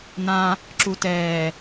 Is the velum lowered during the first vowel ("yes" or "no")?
yes